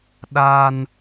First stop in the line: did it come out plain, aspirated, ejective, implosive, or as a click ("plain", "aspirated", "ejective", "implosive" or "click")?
implosive